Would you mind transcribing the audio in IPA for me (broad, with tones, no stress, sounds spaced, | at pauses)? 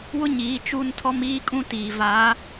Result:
w ʊ˦ ɲ iː˨˦ t͡ʃ u˦˨ n tʰ ɔ˦ m iː˦ kʼ ũ˦ t iː˨ v a˨˦